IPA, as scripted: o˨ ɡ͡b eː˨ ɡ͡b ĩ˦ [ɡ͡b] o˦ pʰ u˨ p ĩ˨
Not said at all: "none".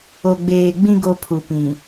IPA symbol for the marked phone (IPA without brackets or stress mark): ɡ